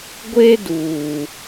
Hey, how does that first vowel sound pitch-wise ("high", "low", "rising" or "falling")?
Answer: high